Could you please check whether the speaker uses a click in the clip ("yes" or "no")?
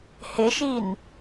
no